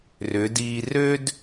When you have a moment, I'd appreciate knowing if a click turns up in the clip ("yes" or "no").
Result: no